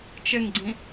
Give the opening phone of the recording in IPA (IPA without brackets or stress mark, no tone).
t͡ʃ